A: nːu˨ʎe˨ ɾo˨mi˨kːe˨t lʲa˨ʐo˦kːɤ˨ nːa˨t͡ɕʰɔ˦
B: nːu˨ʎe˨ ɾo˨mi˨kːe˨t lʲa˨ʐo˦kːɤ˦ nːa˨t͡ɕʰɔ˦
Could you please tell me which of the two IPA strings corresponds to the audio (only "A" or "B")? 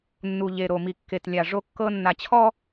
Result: B